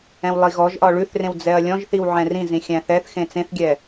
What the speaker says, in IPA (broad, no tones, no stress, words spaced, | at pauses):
ɛ̃wlˠiɣɔʒʔɒ ɭʉθrẽw d͡zɛɐ̯lʲɔ̃ʒθiw ʕɛ̃rĩzĩ xʲæ̃θɛθxẽ t͡sẽθɡʲɛ